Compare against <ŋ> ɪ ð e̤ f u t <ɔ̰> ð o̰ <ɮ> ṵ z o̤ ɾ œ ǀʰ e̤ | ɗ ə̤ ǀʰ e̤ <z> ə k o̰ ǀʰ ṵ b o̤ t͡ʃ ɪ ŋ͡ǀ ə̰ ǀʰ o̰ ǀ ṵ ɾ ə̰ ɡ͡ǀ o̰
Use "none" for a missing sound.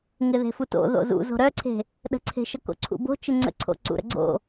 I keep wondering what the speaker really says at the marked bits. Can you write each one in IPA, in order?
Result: ŋ, o̰, z, ʃ

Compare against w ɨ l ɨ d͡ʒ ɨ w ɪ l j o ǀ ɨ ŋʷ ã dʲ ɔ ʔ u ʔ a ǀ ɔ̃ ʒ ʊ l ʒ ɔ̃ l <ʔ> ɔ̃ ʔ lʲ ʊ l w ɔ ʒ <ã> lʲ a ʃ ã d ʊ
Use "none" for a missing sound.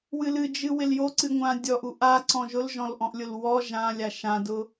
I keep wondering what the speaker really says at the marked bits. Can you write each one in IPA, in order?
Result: ʔ, ã

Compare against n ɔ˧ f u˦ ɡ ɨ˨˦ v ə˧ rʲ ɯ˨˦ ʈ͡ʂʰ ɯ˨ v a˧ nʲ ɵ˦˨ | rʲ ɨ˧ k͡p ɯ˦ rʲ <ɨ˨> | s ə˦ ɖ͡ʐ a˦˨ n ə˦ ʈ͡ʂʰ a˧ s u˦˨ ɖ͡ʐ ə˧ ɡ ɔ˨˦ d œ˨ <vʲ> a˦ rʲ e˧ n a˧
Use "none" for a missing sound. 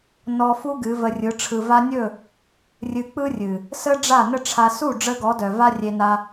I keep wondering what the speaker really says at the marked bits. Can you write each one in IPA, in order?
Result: ɨ˨, v

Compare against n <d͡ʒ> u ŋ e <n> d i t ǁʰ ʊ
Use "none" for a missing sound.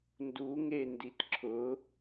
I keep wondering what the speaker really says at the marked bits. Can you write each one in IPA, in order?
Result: d, n

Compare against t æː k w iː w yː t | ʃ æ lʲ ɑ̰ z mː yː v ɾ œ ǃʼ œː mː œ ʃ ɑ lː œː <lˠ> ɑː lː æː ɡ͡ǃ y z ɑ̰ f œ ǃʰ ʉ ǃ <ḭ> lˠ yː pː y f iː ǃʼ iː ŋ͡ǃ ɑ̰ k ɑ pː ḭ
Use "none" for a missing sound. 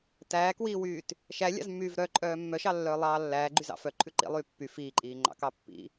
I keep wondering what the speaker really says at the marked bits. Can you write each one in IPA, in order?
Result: lˠ, ḭ

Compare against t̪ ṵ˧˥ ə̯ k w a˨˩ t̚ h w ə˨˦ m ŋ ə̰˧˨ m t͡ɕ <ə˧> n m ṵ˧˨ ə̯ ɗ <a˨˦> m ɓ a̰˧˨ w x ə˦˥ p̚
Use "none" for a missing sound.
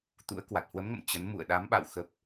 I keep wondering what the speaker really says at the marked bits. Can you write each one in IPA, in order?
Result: ə˨˦, a˨˦

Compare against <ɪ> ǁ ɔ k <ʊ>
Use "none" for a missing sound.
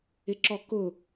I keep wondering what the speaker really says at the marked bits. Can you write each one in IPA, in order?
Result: ɪ, ʊ

